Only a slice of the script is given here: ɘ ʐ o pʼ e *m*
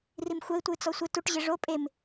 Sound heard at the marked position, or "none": m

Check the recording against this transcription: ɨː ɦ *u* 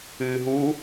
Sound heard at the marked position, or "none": u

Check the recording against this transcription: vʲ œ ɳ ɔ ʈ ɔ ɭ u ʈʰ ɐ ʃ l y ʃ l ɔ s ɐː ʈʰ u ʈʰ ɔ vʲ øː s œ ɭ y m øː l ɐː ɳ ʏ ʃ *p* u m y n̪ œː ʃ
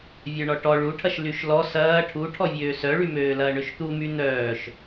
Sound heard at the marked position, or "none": t̪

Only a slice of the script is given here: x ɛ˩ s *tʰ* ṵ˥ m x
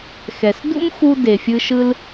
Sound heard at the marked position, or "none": d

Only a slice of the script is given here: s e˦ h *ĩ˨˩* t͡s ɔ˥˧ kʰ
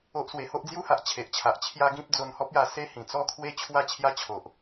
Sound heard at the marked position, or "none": ĩ˨˩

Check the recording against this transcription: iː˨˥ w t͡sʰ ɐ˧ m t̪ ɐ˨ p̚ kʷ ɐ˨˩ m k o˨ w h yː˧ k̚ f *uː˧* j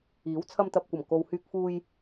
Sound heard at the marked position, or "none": uː˧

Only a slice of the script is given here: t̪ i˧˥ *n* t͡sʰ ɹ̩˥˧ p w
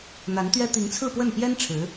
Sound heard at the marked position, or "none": ŋ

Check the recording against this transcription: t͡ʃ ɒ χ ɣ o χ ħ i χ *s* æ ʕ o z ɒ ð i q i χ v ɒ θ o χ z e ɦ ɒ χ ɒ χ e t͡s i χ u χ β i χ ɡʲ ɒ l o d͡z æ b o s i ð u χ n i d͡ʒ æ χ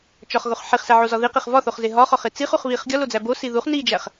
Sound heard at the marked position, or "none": s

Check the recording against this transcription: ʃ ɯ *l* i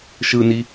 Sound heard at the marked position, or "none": n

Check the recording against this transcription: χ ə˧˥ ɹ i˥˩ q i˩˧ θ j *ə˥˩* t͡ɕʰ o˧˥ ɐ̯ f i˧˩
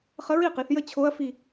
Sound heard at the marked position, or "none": ə˥˩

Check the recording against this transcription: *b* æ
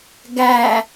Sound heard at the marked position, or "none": ɡ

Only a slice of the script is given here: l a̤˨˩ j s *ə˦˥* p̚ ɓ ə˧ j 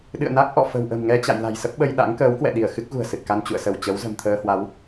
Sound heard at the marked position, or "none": ə˦˥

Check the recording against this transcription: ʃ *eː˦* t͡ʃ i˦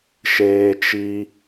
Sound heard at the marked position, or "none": eː˦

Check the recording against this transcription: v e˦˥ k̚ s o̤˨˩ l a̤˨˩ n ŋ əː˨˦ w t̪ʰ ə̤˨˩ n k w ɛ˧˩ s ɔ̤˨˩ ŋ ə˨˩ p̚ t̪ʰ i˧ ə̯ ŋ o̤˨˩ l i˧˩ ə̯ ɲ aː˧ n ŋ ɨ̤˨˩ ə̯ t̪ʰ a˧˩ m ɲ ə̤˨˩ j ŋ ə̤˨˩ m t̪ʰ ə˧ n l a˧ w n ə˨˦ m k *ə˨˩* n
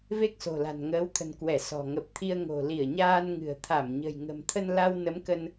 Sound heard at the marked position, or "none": ə˧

